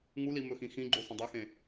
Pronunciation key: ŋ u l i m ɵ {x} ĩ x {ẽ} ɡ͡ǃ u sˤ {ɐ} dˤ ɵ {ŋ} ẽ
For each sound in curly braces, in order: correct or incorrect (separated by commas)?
correct, incorrect, incorrect, incorrect